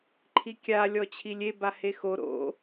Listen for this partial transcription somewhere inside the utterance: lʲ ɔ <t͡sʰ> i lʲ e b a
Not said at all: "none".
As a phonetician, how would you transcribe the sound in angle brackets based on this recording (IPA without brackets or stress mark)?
t͡ɕʰ